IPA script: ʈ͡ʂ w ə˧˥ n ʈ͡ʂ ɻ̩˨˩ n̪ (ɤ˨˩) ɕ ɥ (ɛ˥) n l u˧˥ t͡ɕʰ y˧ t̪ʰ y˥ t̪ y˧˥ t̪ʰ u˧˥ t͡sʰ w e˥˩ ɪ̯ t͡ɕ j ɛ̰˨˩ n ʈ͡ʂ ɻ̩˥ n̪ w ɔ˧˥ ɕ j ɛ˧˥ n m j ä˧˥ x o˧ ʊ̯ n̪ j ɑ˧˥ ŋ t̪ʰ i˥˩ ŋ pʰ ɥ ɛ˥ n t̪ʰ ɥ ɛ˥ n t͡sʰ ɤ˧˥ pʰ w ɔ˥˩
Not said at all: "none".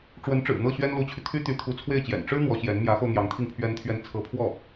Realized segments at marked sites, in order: ɤ˥˩, ɛ˥

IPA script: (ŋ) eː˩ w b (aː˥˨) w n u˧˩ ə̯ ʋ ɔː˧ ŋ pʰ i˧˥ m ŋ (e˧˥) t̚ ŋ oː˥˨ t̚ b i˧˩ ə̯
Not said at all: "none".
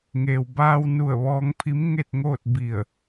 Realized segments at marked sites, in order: ŋ, aː˧, e˥˨

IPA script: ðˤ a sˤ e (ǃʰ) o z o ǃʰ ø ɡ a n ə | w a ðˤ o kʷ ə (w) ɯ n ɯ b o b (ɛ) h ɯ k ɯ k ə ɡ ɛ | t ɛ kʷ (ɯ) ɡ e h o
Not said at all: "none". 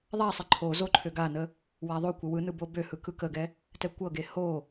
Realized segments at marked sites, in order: ǃʰ, w, ø, ɤ

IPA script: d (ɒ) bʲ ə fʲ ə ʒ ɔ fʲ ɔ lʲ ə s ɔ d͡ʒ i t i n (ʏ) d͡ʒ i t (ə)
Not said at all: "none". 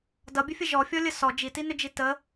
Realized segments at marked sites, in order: ʌ, ʏ, ə

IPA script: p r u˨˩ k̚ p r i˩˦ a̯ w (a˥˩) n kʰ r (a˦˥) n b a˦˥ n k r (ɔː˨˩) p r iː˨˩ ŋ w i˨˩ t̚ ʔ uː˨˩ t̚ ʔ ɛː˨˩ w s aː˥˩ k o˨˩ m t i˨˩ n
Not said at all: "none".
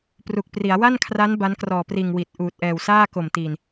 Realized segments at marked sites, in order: a˥˩, a˦˥, ɔː˨˩

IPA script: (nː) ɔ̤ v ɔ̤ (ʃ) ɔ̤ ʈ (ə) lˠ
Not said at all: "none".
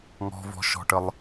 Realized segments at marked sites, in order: ŋ, ʃ, ə

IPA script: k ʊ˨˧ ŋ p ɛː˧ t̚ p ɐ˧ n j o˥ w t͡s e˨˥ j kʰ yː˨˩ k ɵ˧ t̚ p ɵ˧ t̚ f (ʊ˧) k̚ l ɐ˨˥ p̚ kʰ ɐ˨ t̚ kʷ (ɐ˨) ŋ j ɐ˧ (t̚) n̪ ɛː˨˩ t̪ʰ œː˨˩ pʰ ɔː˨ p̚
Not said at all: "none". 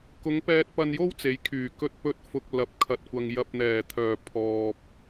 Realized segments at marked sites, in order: ʊ˨, ɐ˨, p̚

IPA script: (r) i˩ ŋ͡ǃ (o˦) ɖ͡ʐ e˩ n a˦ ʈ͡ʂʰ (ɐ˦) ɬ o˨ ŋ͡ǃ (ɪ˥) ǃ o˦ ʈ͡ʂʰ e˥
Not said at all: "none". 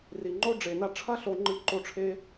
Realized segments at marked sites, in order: r, o˦, ɐ˦, ɨ˥

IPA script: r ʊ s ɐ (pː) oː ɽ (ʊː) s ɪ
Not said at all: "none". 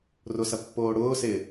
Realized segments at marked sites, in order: pː, ʊː

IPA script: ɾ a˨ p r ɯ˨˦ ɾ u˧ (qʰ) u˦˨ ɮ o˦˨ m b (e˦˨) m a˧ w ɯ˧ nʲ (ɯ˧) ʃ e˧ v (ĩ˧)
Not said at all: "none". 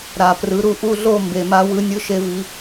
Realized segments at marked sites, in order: ʔ, e˨, ɯ˧, i˧

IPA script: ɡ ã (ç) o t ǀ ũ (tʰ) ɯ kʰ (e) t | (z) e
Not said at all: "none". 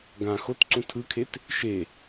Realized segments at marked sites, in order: x, tʰ, e, ʃ

